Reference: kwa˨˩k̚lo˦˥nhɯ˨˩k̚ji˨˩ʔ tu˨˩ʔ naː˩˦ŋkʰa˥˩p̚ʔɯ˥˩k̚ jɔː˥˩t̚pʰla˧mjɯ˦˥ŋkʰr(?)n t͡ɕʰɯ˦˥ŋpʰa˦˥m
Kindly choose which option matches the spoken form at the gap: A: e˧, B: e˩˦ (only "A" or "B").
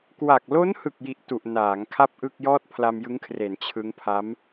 B